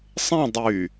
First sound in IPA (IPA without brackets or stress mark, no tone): sˤ